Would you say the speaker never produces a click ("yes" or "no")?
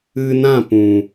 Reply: yes